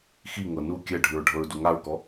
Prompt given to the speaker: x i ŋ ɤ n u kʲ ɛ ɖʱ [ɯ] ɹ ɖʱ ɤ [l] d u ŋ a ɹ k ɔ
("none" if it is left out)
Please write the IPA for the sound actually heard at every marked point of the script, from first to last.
ɯ, ɹ

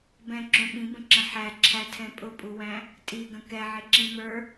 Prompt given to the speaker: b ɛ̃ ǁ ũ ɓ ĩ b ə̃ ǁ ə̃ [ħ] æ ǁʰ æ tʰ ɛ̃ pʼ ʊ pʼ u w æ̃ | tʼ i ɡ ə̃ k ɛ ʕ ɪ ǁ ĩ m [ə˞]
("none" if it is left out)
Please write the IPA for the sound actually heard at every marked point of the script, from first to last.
ħ, ə˞

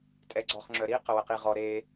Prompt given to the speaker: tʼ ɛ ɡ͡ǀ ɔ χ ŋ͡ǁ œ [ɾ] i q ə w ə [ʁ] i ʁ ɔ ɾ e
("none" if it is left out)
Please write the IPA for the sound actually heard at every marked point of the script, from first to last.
ɾ, q

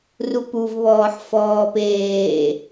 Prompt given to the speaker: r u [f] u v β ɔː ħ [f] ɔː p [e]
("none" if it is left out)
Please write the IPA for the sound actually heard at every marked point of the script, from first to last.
p, f, eː

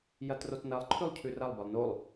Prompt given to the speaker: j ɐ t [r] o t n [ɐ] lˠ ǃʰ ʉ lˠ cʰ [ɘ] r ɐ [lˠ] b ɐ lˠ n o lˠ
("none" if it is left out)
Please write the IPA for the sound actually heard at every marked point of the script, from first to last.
r, ɐ, ʉ, lˠ

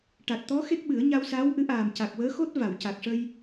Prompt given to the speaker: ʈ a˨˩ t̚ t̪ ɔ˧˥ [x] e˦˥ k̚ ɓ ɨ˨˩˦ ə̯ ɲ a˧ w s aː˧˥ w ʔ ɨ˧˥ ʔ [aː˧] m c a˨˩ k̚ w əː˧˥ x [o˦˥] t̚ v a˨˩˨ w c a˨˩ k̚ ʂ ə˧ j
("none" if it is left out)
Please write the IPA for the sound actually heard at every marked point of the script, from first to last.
x, aː˨˩, o˦˥

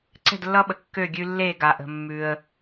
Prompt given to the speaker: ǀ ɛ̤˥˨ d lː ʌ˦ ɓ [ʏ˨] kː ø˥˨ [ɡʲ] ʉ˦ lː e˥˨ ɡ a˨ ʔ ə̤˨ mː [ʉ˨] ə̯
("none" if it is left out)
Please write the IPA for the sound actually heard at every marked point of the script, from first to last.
ə˨, ɡʲ, ʉ˨

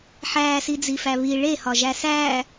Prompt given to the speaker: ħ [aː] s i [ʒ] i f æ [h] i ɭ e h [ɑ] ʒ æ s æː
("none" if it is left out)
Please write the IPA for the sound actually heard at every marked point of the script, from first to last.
æː, d͡z, β, ɒ

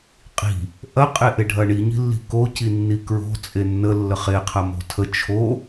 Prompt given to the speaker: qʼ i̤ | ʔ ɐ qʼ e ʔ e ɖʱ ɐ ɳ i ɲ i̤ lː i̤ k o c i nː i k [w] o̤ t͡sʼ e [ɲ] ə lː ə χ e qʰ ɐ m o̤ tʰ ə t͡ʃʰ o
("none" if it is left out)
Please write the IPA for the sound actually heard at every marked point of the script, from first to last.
ɹ, nː

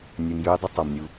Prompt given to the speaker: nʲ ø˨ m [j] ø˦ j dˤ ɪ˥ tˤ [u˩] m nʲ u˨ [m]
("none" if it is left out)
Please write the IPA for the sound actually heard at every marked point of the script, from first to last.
j, o˩, none

